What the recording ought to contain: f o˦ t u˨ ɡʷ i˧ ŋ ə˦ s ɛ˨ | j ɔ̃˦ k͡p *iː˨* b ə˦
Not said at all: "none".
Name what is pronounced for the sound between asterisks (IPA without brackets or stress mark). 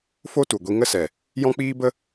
iː˦